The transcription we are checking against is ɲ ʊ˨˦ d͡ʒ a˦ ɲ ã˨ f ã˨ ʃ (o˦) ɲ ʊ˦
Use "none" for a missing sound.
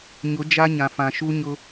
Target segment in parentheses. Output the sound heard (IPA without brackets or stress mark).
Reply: u˦